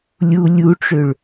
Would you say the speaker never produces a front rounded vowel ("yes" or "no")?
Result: no